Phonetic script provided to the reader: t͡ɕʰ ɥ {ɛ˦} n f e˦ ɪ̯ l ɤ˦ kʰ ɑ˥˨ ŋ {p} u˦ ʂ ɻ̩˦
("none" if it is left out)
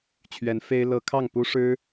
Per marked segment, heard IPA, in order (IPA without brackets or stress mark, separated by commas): ɛ˨˦, p